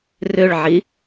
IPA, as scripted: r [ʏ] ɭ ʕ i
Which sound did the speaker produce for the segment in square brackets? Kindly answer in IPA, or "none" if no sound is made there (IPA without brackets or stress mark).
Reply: ʏ